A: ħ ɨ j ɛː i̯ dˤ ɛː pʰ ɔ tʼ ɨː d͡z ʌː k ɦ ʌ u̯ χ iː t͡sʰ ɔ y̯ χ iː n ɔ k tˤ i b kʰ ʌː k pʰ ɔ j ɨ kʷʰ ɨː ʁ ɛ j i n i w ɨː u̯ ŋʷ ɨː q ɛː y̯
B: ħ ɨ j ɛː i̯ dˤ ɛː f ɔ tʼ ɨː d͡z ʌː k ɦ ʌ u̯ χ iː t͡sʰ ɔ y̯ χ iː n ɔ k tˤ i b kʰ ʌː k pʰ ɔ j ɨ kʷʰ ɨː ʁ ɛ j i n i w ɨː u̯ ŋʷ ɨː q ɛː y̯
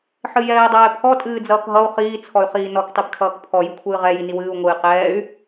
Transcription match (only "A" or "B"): A